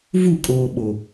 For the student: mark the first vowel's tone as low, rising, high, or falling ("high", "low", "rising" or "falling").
falling